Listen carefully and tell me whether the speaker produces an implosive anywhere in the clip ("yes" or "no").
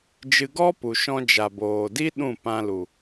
yes